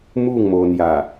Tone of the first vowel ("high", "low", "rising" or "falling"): falling